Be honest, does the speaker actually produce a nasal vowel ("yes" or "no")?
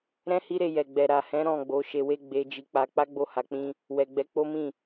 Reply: yes